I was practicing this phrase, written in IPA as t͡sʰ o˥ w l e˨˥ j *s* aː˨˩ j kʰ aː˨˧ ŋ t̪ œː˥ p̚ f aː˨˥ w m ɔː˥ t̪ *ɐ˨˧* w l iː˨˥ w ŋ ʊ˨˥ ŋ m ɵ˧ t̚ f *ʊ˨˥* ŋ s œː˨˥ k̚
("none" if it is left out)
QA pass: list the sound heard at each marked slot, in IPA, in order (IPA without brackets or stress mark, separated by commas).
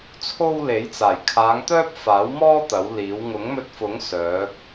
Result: t͡s, ɐ˨˥, ʊ˨˥